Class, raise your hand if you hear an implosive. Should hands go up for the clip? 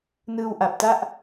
no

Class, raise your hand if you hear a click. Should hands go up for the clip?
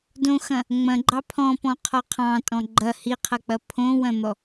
yes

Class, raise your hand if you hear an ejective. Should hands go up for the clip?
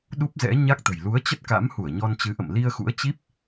no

